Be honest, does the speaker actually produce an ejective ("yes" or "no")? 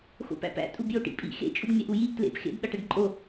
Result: yes